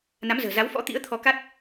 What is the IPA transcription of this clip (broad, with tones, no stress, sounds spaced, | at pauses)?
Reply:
n a˨˦ m z ə̤ː˨˩ z a˨˦ w f ɔ̰˧˥ t̪ ḭ˧˥ ə̯ t̪ʰ ɔ˧ k a˦˥ t̚